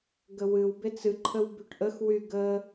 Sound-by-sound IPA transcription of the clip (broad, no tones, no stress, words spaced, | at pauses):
ɡəwɨwbet͡s ɨǃʰəw byʈʔəxwy ɡə